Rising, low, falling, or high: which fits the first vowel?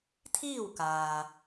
falling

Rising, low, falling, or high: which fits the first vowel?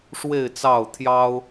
falling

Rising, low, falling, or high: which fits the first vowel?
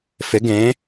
rising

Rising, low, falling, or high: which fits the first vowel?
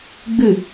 falling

